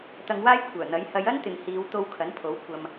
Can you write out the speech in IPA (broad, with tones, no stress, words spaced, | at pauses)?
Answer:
t̪ɐ˧ŋwaː˥jkʷʰœː˨˩n̪ɐ˨˥j hɐ˨˧jɐ˥nt̪ɪ˨ŋ hiː˨˧wt̪o˧w kʰɐ˨˥npʰo˨˥wkʷʰɐ˧m